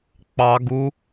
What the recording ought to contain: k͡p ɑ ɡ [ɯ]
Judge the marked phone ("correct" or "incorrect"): incorrect